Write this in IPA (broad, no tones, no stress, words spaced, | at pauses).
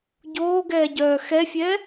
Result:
ɟoːɡɛːɟœː xɛfʲɛː